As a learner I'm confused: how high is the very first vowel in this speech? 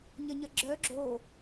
low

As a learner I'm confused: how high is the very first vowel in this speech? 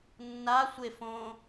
low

